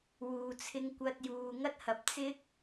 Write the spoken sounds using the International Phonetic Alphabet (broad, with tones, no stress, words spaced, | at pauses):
wuː˨t͡sʰɪ˧ŋ kʷɐ˧t̚juː˨ ŋɐ˥t̚hɐ˧p̚ t͡sɪ˥k̚